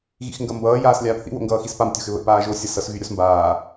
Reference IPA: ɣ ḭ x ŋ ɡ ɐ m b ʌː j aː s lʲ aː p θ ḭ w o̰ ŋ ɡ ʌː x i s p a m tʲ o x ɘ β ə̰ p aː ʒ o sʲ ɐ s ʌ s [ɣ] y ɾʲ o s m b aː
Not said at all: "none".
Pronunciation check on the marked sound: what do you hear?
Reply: ɣ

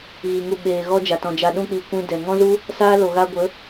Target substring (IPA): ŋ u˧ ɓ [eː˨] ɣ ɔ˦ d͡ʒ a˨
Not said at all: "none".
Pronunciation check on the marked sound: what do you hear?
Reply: eː˨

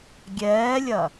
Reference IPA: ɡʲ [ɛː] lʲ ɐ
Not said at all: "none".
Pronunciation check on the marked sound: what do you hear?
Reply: ɛː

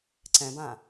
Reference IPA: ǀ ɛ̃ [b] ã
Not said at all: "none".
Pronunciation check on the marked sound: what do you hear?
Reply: b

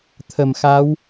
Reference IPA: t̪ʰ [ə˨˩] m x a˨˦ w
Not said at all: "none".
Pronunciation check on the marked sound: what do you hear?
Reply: ə˨˩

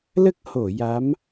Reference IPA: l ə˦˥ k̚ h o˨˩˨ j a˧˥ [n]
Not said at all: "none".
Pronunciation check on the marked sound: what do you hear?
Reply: m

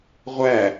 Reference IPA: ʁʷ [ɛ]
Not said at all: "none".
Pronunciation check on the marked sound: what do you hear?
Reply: æ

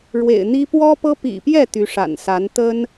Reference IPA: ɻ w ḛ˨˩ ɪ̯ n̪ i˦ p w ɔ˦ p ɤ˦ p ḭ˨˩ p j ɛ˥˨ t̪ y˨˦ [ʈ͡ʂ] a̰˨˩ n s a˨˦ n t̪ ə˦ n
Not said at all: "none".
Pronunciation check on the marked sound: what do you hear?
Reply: ʂ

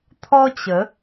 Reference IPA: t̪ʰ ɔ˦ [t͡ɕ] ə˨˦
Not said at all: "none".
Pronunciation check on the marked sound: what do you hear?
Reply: t͡ɕ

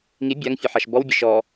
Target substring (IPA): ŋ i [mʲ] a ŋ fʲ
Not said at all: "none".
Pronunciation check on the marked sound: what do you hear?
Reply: bʲ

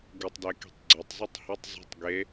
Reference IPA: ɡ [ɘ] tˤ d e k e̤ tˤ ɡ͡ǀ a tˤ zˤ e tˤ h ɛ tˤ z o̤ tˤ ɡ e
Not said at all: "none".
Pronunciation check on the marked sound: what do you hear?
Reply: ɘ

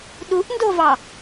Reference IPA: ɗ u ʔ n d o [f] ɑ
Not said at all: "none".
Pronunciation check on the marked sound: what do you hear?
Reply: v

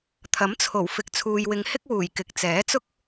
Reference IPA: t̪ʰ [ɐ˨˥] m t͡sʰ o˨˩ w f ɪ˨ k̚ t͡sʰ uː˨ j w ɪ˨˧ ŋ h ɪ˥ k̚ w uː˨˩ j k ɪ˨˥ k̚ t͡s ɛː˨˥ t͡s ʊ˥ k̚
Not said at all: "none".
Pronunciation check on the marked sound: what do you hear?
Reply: ɐ˨˥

